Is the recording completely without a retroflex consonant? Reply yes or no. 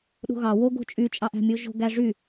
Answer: no